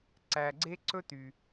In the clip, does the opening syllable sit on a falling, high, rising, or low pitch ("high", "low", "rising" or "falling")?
low